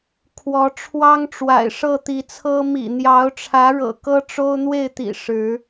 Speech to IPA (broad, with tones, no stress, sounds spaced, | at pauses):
kʰ w ɔ˨˦ ʈ͡ʂʰ w ɑ˦ ŋ ʈ͡ʂ w a̰˨˩ ɪ̯ ʂ ɤ˥˨ t̪ i˨˦ t͡sʰ ɤ˦ m ḭ˨˩ n̪ j ɑ˨˦ ʊ̯ ʈ͡ʂʰ ä˨˦ ɻ ɤ̰˨˩ k ɤ˦ ʈ͡ʂ o˦ ʊ̯ n̪ w e˥˨ ɪ̯ t̪ ḭ˨˩ ʂ ɻ̩˨˦